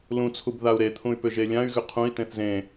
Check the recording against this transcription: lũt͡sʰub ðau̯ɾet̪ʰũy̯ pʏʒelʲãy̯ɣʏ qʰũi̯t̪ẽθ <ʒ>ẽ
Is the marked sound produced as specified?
no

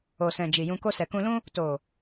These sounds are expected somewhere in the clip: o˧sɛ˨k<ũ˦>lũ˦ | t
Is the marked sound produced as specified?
no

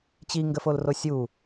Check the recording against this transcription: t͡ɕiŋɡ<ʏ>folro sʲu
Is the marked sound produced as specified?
no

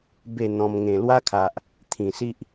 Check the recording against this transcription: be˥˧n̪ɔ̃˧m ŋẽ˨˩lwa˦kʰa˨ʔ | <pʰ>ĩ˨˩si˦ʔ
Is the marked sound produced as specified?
no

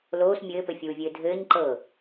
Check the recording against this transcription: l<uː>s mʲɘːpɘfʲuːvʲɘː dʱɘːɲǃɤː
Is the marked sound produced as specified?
no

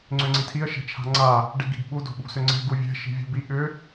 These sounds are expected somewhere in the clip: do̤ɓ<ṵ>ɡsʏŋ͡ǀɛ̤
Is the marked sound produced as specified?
no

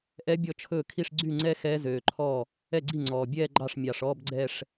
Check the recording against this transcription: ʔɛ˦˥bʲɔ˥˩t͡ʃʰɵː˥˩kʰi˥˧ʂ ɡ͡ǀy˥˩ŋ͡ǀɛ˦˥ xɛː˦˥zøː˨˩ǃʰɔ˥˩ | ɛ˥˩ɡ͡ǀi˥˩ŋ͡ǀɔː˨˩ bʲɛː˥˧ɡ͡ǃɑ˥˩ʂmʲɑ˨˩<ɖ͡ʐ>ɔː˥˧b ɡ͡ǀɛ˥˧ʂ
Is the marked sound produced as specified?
no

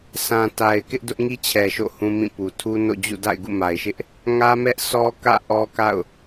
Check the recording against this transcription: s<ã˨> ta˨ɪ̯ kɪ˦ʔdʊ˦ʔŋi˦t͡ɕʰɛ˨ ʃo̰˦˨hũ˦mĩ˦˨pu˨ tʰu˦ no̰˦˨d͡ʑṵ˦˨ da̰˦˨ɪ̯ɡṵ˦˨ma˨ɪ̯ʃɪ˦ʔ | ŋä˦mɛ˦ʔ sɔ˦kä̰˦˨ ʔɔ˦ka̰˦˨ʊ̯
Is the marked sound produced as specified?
yes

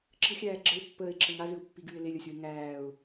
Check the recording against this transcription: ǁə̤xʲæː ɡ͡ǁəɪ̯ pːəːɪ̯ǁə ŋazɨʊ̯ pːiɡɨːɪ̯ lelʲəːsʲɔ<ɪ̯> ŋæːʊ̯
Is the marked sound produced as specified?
yes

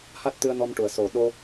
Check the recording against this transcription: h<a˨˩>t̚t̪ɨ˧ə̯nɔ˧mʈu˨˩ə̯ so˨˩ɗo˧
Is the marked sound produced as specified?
no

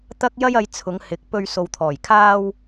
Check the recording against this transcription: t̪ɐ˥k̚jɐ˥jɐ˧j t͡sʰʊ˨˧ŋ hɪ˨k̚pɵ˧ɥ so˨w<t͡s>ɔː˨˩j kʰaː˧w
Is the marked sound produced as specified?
no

